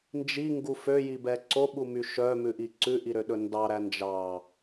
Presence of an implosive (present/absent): present